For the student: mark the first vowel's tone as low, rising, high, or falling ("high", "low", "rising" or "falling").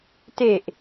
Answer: low